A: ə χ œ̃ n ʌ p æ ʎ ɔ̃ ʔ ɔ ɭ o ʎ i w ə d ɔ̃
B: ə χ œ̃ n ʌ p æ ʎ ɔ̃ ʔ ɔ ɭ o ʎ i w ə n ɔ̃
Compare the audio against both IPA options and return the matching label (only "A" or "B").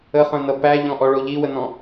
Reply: B